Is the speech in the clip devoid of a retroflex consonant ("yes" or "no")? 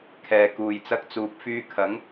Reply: yes